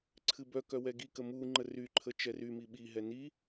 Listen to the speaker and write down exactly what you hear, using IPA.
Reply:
ǀʰ ɨ b œ k œ w ɛ ɡ i k ə m u ŋ͡ǃ ə r y ǃʰ ə t͡ʃ ɛ r y m i ɓ i ɦ ɛ n i

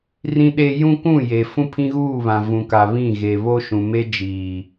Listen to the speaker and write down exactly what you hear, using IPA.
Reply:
r ĩ˦ ɗ e˦ j ũ˦ kʷ ũ˦˨ j e˨ f ũ˦ pʰ ĩ˦ ɣ uː˦˨ β ã˨ v ũ˨ k a˨ β ĩ˦˨ ɣ e˨ β o˦ ʃ ũ˨ m e˦ d͡ʒ iː˨

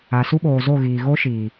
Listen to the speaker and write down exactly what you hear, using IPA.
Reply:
a˨ s u˦ ɓ oː˨ z o˦˨ ɣ iː˨ ɣ o˦ ʃ iː˨

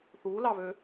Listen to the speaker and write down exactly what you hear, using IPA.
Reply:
θ u l ɑ β ø

